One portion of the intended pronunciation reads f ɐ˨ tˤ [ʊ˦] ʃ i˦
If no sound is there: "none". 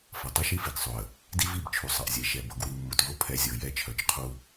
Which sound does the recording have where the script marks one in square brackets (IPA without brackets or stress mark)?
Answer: ʊ˦